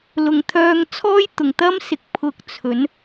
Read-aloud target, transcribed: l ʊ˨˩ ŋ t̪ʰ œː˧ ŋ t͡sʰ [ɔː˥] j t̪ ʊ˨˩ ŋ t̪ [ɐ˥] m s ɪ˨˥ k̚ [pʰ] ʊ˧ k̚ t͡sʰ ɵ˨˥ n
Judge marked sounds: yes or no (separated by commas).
yes, yes, yes